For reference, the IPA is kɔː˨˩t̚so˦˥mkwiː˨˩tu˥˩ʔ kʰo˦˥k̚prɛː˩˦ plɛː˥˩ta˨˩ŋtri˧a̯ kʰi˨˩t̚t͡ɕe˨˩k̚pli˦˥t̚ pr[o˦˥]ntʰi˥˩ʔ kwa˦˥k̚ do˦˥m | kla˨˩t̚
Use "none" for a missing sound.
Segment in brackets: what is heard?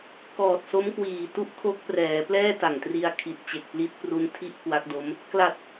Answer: u˦˥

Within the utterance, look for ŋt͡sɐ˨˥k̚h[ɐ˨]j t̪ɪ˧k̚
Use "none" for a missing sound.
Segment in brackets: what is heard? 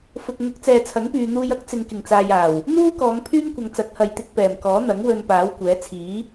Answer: ɐ˨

